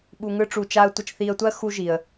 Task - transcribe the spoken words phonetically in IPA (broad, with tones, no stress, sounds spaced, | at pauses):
ɓ u˧ ŋ ɯ˥ ʈ͡ʂ u˧ t͡ʃ a˧ ə̯ tʷ ə˧ t͡ʃ θ i˧ ə̯ tʷ ɜ˥ x u˥ ʒ i˩ ə̯